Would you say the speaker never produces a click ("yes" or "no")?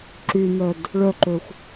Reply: no